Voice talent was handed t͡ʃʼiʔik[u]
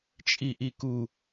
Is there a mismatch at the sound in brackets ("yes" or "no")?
no